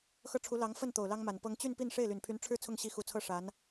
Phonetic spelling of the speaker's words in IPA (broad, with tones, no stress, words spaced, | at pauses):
xɤ˥˩ʈ͡ʂʰu˧˥ lɑ˧˥ŋ fə˥˩n t̪o˨˩ʊ̯lɑ˥ŋma˨˩npɤ˥ŋ t͡ɕy˥˧npi˥˧n ʂe˥˩ɪ̯ly˨˩npʰy˧˥n ʈ͡ʂʰɻ̩˥˧ t͡sʰʊ˥˩ŋɕi˧˥xu˨˩t͡sʰɤ˥˩ ʂa˧˥n